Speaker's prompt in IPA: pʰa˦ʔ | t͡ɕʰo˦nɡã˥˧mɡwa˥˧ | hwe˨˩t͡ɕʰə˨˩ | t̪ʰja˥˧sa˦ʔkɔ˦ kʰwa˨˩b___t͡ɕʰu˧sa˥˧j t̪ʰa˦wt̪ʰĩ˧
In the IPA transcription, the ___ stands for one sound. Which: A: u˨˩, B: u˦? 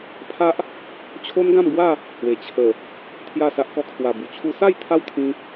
A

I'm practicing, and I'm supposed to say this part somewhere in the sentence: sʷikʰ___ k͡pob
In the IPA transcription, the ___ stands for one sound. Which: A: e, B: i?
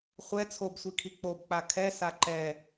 B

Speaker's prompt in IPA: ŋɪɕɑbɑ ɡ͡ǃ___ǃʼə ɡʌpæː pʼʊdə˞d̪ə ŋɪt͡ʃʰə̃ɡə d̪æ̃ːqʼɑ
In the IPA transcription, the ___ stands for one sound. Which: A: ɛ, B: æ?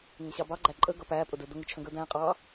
B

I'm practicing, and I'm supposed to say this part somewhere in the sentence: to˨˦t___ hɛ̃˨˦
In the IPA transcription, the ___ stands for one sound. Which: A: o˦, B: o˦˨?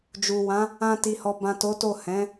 B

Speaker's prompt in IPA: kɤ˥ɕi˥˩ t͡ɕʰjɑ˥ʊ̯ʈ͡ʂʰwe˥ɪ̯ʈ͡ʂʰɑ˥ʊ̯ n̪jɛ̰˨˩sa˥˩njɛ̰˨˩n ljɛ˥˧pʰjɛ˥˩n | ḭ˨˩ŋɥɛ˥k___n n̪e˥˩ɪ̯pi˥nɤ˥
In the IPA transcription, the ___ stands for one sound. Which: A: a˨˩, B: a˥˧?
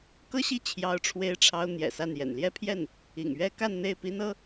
B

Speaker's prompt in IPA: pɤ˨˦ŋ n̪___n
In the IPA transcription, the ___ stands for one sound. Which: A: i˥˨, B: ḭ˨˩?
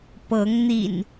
B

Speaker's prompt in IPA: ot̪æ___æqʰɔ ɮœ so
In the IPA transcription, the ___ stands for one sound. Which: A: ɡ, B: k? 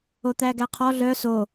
A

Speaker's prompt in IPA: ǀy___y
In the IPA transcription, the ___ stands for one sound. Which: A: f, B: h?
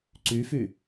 A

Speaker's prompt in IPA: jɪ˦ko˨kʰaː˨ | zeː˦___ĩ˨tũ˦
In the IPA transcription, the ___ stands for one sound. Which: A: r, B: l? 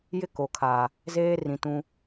A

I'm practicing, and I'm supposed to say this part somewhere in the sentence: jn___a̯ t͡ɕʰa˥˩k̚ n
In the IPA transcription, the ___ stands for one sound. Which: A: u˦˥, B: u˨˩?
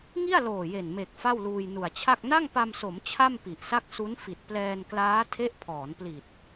B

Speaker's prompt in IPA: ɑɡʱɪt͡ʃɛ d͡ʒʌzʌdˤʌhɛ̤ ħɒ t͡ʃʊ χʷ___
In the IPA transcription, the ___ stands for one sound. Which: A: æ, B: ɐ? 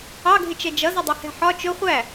A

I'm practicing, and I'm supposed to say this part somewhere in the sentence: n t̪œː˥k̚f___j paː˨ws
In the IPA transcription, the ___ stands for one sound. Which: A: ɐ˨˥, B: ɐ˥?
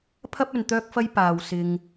B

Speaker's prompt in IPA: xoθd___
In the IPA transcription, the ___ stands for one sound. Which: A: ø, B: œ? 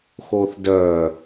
B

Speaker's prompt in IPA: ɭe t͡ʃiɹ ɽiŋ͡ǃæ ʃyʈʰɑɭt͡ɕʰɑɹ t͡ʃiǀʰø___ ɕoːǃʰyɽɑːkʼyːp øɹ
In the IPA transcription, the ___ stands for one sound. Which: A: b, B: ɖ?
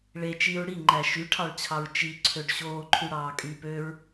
B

